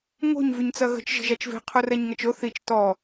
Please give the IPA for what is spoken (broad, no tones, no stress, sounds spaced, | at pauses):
ŋ o̤ ɲ v y ɲ t͡s ɐ ɣ ə̤ t͡ʃ ʒ ə̤ ʒ a t͡ʃ v e̤ qʰ o r ɛ ɲ ŋ ɐ t͡ʃ o θ i t͡ʃ t ɔ